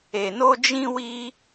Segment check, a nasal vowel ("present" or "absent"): present